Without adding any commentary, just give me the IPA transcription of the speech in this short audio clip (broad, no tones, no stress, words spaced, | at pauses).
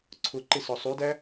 ǀʰʊǃɪsɔ sˤudæ